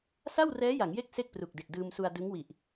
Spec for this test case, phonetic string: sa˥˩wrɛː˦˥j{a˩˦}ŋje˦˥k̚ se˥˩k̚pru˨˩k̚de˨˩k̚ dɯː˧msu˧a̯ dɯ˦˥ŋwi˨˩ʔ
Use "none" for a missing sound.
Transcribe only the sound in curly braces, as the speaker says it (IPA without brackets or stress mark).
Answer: a˩˦